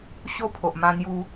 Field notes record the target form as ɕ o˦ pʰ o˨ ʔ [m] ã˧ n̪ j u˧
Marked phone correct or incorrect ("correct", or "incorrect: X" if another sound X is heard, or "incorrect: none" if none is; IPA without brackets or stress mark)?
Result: correct